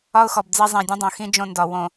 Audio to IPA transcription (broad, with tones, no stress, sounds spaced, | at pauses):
ɒ˦ ʊ̯ x ɔ˨ b d͡z e˦ zˤ ẽ˨ dʲ ə̃˦ dˤ õ˨ x ĩ˦ d͡ʒ õ˦ n d ɒ˨ w õ˨